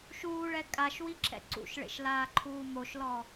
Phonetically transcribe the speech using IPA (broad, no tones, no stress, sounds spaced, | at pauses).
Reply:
ʃ uː ɭ ɛ kʼ a ʃ w i ǁ ɛ̰ ǀ ṵ ʃ ɭ ḛ ʃ l aː ǃʰ uː m o ʃ l ɔ